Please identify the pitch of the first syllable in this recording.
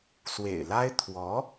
low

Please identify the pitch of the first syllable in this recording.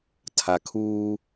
low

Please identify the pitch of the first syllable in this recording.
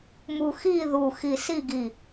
high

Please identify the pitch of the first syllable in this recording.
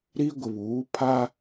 high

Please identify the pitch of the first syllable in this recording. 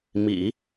low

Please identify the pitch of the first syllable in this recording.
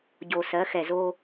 low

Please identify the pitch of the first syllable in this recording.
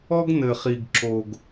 high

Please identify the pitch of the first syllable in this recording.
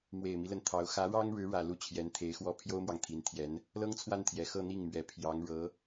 low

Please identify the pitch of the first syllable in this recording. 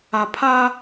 low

